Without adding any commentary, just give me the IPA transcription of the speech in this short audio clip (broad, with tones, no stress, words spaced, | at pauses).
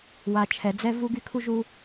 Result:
wa˨ t͡ʃʰɛ˨d͡zɛ˦vu˦ɡy˦ kʰu˦ʒu˦